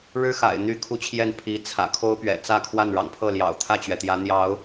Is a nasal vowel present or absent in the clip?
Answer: absent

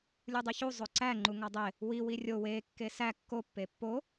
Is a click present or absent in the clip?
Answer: present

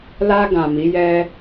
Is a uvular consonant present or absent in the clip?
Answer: absent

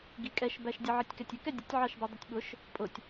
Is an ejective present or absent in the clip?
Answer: present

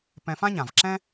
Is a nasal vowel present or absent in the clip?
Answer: present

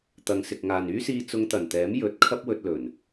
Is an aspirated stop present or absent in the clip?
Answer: present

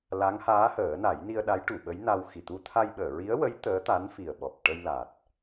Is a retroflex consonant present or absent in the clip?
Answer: present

